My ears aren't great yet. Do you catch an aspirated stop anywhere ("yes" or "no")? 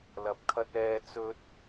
yes